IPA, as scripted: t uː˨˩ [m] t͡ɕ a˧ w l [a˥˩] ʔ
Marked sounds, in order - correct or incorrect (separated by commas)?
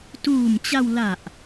correct, incorrect